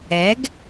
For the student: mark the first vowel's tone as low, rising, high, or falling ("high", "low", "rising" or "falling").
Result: rising